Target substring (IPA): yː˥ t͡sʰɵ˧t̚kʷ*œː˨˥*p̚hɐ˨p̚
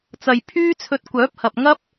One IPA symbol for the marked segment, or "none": œː˨˥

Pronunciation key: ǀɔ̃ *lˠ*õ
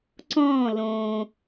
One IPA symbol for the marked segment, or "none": l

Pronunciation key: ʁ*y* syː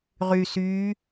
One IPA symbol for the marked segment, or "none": y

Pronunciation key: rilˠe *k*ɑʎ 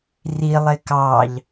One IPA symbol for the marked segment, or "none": k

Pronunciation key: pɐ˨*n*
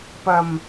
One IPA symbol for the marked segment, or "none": m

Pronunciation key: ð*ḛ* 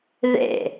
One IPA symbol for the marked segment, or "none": ḛ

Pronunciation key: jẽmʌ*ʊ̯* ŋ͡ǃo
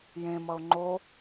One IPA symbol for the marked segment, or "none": ʊ̯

